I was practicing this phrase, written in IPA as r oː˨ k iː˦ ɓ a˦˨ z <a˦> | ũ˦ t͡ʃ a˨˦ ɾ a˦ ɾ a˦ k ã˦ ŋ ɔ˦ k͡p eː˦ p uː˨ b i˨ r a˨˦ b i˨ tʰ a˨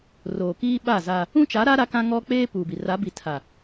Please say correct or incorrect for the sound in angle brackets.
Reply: correct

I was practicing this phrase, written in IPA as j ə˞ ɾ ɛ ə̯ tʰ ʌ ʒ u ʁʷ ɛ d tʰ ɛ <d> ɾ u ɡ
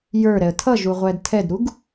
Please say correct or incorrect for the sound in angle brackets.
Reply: correct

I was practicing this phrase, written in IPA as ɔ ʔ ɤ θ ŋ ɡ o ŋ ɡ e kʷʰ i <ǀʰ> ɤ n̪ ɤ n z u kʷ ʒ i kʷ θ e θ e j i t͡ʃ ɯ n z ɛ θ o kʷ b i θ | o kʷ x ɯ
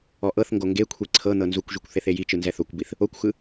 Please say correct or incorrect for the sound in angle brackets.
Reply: correct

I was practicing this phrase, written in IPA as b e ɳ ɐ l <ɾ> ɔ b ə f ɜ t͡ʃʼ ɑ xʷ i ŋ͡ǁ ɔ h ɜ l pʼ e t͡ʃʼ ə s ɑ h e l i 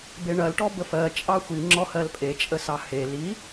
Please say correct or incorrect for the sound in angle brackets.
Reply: incorrect: ʈ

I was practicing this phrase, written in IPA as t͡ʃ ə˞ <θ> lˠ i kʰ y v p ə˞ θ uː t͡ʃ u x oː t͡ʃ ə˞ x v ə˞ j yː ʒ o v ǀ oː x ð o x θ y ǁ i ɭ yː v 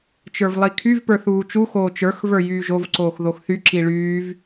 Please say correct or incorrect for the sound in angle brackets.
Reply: incorrect: v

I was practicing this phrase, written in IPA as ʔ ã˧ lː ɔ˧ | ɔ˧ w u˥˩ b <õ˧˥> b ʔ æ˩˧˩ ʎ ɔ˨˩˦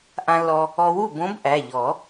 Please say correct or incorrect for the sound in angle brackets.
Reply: correct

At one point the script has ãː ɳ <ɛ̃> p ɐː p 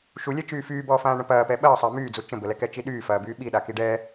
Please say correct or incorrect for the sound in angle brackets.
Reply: incorrect: ə̃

